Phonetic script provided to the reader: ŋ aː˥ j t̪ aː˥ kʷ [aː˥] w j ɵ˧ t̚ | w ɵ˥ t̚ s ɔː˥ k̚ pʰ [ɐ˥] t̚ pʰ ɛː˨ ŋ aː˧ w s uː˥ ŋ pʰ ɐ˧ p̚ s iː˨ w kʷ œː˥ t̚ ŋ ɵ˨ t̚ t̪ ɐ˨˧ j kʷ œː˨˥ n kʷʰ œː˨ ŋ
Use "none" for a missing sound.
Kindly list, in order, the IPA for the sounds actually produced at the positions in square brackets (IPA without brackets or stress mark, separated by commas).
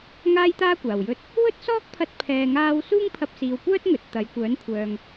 aː˨˩, ɐ˧